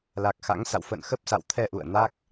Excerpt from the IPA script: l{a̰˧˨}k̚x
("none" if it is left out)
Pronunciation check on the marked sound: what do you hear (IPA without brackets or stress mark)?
a˨˩